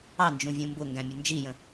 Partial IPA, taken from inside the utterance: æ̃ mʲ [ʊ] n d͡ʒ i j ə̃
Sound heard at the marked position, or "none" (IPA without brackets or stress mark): ʊ